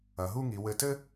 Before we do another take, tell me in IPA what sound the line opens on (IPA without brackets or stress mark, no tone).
ɐ